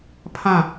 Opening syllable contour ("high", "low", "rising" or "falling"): falling